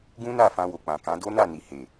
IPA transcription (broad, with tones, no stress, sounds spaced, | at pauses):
ɡ ũ˦ n a˦˨ f ã˧ w o˨ k͡p ã˨ k ã˨˦ d o˦ n a˦˨ n i˨ h e˨